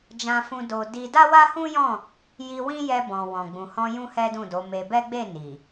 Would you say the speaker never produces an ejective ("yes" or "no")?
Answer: yes